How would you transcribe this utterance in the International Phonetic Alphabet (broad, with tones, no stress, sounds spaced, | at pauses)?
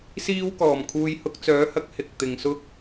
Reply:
s iː˥ w k ɔː˨˩ m kʰ uː˧ j h ʊ˧ k̚ t͡s œː˨˥ h ɐ˨˥ k̚ h ɪ˨ k̚ t̪ ɪ˨ ŋ s ʊ˥ k̚